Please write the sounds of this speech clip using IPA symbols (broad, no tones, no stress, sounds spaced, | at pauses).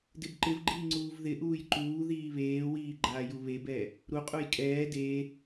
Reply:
d ɪ b ǃ ɪ v ɡ͡ǃ iː ŋ͡ǀ uː v ð ɪ ʔ uː j ǃ uː ð iː β eː w iː ɡ͡ǃ aː j u β e b ɛː | ɾ u qʼ u j kʼ ɛː d eː